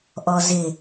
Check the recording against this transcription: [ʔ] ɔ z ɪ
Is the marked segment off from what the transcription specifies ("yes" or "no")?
no